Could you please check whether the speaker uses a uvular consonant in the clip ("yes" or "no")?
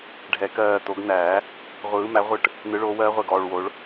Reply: yes